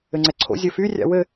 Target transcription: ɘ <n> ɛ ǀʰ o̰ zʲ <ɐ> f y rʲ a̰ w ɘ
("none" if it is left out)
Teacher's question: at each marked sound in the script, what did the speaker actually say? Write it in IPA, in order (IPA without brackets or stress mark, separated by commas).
ŋ͡ǀ, ə